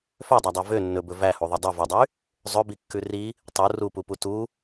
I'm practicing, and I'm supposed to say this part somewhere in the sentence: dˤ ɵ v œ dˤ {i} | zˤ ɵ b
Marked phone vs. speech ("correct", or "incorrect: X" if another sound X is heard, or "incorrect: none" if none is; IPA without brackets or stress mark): incorrect: y